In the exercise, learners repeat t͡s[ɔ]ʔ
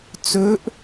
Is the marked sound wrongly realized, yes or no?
yes